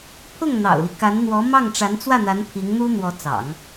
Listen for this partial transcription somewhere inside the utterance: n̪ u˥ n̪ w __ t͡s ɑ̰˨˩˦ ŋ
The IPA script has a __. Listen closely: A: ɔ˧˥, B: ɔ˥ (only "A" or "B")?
A